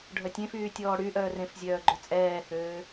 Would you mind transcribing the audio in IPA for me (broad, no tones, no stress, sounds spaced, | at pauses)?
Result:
ɖʱ œ tʲ ẽ f yː tʲ ɔː ɽ y ʔ œː r ẽ f zʲ œː ɡ͡ǃ œ t͡sʼ ɛː h øː